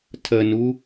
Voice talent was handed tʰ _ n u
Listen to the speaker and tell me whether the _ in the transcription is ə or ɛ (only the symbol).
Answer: ə